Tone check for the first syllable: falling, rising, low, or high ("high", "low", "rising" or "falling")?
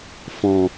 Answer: low